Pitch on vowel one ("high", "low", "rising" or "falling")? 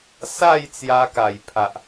falling